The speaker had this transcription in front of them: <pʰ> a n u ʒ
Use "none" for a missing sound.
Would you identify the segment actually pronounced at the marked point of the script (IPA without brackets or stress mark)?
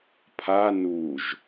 pʰ